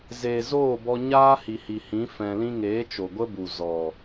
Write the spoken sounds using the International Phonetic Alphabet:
zeː˨zoː˦˨bɔ˧ ɲaː˦hi˨hi˨hĩ˨˦ fɛ̃˧lĩ˦ ŋeː˨˦t͡ʃo˨ɡʷə˦ bu˨zɔ˨

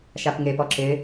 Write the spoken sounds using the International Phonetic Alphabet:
ʃapŋepɔ ǁɪ

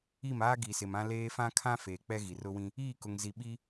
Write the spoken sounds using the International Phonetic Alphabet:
i˦˨maː˦ ɡi˨sɪ˨mã˦ leː˦ fã˦kʰã˦ feː˨k͡pɛ˦ ɣi˨rʊ˦wĩ˦ | iː˦˨kʊ˨ŋzi˨ ɓi˦

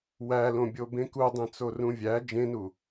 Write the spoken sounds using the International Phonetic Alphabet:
wælõbʲo bẽkudˤẽ t͡sorũvʲæ d͡ʒẽnu

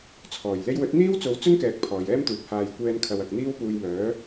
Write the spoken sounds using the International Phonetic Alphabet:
t͡sʰɔː˨˩j le˧jwɵ˨˥t̚ n̪iː˥wt͡so˨˧wt͡sɵ˥n kɛː˧k̚pʰɔː˨jɛː˥mt̪uː˨˥p̚ haː˨jkʷɛː˧nkʰɐ˨wɐ˨k̚ n̪iː˥wpuː˧jmœː˨˥

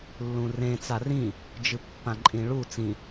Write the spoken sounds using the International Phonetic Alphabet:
lːũrẽ t͡sarĩ | d͡ʒɨpːãǃʼĩɭu t͡sĩ

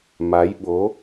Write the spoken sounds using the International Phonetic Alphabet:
ma˧˥jɓo˧˥

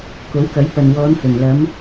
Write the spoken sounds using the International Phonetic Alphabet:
ko˨˥wkɐ˨˥j pɐ˨nwɔː˨˧nhɵ˨˩nlɐ˨˧m

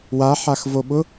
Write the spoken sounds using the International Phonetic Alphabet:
waħaxvoɓʊ

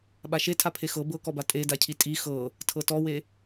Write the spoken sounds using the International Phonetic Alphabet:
ɓaʃetʰapʰe xɤ bɤkɔba tʼedacʰi tʼi xɤ | tʰɤtɔwe

